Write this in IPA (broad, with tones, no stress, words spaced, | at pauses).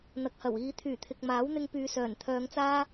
n̪ɐ˨k̚hɐ˨˩wiː˨˧ t̪ʰyː˨˩t̪ʰɪ˨k̚maː˨˥wn̪ɪ˧ŋ pyː˨˧sœː˨˩nt̪ʰœː˨˧ŋt͡saː˥